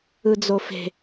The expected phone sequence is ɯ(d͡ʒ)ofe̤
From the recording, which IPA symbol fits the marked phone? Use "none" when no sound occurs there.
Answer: d͡z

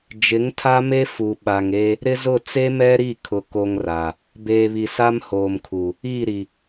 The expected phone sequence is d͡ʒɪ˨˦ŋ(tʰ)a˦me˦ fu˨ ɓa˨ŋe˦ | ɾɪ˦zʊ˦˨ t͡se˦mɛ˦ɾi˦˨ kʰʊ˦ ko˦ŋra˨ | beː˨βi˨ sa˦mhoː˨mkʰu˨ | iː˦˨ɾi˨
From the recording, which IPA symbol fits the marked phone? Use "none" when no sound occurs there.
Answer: tʰ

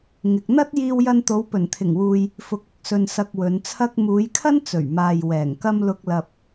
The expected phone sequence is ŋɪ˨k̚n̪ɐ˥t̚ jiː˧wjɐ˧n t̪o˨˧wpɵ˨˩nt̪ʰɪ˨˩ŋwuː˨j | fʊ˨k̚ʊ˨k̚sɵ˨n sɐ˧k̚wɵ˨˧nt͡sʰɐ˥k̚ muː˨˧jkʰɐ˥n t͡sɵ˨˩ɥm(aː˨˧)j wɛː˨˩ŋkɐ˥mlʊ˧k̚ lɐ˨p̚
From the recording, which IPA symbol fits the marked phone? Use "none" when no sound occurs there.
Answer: aː˨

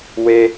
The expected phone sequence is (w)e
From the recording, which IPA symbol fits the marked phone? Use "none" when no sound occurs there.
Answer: w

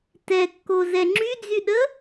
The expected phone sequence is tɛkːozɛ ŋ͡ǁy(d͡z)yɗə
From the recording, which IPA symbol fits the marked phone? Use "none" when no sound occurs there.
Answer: d͡z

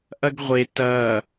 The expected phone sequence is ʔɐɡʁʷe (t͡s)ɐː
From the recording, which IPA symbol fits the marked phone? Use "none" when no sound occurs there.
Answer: t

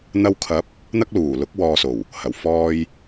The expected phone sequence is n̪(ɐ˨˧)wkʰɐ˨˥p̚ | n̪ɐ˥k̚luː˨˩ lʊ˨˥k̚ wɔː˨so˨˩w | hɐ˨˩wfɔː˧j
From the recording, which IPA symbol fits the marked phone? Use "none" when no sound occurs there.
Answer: ɐ˧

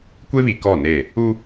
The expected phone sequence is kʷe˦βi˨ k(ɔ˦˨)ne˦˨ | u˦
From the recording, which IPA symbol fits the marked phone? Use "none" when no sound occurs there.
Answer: ɔ˦˨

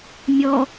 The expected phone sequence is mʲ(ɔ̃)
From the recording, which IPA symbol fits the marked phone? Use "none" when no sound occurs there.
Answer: ɔ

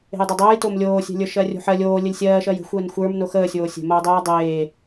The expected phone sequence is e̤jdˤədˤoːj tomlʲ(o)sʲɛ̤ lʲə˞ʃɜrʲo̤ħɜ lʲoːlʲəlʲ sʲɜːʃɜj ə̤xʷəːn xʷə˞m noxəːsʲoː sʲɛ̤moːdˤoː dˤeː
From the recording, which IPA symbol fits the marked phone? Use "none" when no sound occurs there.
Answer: oː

